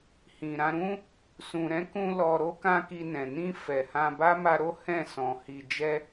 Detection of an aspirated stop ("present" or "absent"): absent